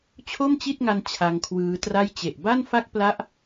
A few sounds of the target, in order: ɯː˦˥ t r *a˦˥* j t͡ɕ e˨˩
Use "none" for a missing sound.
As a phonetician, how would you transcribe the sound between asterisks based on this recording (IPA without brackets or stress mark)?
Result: a˥˩